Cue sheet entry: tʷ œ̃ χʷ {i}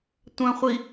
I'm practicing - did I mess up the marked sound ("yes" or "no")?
no